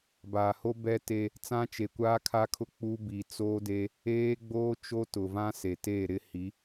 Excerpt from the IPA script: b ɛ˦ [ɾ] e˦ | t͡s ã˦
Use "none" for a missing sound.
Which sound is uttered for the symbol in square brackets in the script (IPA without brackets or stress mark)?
t